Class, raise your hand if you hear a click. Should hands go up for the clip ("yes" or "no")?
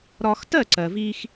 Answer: yes